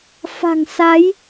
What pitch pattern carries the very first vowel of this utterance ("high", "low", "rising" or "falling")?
low